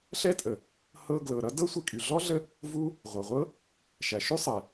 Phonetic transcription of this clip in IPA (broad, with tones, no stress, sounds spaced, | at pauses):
ɬ ɛ˥ tʼ ə˩ | h ɤ˦ ɡ l ɤ˨ ɾ ʌ˥ d ɤ˥ sʷ i˥ kʼ y˨ ɮ ɔ˥ ɮ ə˦ | v u˥ | ʁʷ ɤ˩ ʁʷ ɤ˥ | ʃ æ˨ ʃ y˥ sˤ ɛ˩